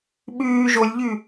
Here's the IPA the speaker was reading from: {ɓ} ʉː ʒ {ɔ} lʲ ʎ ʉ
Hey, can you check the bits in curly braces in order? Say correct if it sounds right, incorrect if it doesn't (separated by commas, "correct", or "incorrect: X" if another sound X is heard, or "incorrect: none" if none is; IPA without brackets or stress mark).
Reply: correct, incorrect: o